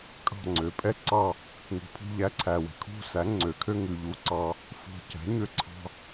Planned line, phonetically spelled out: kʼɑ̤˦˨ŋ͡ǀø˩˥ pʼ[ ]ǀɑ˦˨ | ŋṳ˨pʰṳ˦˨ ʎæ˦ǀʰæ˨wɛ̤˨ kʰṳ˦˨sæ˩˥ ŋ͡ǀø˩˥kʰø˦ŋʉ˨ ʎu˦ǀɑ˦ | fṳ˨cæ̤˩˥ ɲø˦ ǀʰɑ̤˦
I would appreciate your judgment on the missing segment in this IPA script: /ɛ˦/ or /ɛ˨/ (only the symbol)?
ɛ˦